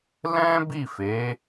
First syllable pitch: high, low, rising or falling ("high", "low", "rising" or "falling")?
high